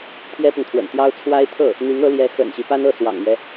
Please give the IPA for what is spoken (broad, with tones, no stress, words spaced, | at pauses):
t̪ʰjɛ˥pʊ˨ŋt̪ʰwə̰˨˩nt̪jɑ˥ʊ̯ t͡sʰwa˥ɪ̯t̪ʰɤ˥˩ | n̪i˧˥ŋɤ˧˥ljɛ˧˥ xə̰˨˩nɕi˦ pa˥nɤ˥˩swɑ̰˨˩ŋmɥɛ˦